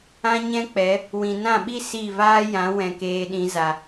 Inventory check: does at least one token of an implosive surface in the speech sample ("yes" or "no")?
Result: yes